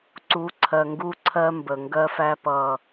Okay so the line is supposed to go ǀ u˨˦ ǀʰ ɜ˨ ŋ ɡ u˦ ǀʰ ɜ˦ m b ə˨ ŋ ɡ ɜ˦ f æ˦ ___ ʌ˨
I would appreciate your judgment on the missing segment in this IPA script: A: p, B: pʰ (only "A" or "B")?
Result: A